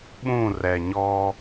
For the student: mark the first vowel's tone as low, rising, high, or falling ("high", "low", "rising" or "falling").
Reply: falling